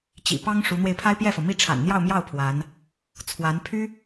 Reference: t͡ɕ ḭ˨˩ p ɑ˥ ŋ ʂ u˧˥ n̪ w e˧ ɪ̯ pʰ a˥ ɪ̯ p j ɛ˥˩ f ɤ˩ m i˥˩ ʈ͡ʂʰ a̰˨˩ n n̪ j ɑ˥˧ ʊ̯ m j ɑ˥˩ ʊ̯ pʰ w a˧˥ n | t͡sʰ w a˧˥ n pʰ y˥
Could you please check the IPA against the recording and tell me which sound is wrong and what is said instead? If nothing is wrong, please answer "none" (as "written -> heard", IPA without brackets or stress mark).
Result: none